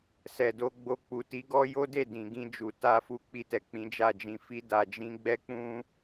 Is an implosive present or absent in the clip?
absent